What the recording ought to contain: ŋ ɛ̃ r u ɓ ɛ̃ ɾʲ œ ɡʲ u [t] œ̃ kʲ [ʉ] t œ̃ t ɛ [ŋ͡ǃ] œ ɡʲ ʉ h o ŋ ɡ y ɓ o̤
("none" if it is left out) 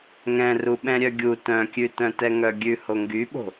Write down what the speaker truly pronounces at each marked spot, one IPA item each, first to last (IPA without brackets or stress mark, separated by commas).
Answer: t, ʉ, ŋ